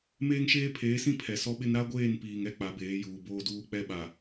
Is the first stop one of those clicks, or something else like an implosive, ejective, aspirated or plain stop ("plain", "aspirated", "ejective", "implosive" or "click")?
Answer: aspirated